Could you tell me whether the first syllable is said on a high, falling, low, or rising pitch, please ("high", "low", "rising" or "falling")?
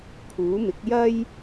rising